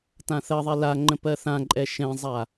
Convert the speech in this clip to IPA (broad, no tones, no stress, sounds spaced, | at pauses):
t ã θ ɜ ðˤ ɛ l a ŋ͡ǃ ə̃ p ɜ θ ã ǃʼ ɛ ʃ ɛ̃ zˤ a